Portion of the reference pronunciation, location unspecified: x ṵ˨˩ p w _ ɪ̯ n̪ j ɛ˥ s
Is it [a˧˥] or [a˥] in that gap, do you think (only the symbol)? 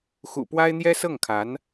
a˥